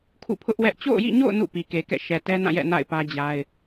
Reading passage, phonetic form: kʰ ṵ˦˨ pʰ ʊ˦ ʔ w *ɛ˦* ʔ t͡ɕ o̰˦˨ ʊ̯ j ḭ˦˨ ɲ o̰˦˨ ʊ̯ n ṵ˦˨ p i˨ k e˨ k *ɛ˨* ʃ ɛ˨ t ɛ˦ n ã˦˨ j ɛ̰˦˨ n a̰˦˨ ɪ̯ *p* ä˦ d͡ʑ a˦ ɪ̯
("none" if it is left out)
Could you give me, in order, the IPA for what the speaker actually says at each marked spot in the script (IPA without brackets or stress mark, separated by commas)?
ɛ˦, ɛ̰˦˨, p